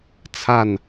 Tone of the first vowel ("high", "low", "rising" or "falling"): falling